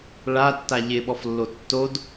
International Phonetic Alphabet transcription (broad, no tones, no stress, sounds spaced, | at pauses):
ɭ a tː a ʎ ɪ ɓ ɔ f lː o tː o d